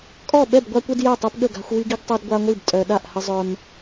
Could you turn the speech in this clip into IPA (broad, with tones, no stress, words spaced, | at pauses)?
kʼɔ˥˨ ɓɛ˥˨bɡʷa˦kʷe˦d jɛ˥˨tˤe˦pɠə˥˨ɡa̤˦xʷ wi˦ɡi˦ɡtˤɛ˦d ɡʷa˦ŋʷi˥˨b tʼœ˦ ɗa˥˨ʔhə˦zˤœ˦m